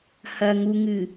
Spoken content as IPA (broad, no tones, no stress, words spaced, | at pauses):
hɐŋuŋɨ